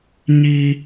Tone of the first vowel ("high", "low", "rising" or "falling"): high